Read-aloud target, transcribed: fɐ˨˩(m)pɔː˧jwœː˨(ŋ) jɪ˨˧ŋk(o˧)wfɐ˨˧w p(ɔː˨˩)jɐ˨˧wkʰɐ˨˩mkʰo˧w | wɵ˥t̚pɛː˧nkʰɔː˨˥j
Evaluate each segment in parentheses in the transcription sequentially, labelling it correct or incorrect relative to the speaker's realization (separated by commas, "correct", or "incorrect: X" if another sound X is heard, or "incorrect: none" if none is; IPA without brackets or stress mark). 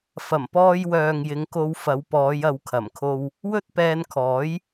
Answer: correct, correct, correct, incorrect: ɔː˨˧